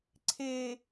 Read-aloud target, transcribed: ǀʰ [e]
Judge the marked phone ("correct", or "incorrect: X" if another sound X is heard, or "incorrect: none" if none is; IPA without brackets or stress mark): correct